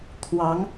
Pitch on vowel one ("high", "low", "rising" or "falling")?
rising